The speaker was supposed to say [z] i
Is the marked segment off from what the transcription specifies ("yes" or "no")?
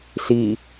yes